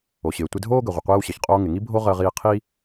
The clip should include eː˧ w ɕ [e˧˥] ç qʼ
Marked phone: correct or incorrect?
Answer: incorrect